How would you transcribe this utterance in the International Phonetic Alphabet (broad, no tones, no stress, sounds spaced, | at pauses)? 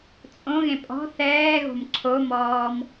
t͡sʼ õ ɣ ẽ pʼ ɔ̤ θ ɛː ɣ o̤ m ǀʰ o m ɔː m